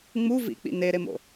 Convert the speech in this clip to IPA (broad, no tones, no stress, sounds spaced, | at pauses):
ŋ͡m u v ḭ k͡p ḭ n e ɾ e m o̰